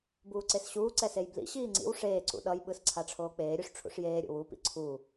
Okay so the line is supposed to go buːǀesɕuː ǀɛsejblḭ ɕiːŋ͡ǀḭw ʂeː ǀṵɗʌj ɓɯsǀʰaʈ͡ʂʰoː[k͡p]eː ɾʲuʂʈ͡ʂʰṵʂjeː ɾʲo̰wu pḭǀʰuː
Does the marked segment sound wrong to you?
no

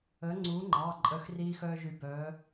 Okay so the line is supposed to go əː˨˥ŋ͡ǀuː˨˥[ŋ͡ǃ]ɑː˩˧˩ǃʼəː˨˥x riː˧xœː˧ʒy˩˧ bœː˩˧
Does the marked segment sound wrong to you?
no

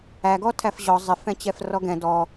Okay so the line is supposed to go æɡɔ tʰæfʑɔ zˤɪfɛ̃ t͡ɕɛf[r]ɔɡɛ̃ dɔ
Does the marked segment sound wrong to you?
no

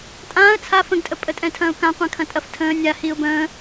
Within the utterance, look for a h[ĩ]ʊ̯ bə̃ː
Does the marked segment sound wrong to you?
yes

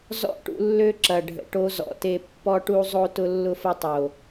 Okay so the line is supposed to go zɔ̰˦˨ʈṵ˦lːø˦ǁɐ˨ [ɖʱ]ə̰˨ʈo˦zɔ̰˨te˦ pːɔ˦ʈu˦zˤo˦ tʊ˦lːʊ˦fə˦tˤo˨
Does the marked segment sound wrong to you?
no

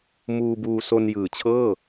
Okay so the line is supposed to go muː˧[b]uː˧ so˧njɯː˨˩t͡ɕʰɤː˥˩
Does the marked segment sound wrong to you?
no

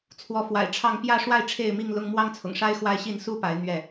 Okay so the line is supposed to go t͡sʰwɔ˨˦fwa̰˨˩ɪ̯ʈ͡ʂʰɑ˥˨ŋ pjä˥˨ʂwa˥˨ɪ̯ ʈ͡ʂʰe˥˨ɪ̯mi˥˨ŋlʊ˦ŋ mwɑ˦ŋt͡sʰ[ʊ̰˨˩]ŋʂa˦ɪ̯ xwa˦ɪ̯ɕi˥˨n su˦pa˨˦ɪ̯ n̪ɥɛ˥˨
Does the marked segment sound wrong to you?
no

